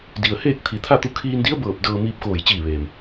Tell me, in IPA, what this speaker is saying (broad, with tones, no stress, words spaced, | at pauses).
di˩ə̯heː˥˨k̚ t̪ʰi˧˩t̪ʰa˥˨t̪u˧˥ kʰiː˧ndi˧˥ə̯bɤː˧˩p̚ dɤː˧miː˧p̚koː˧˩j t͡ɕiː˧˩ʋeː˩m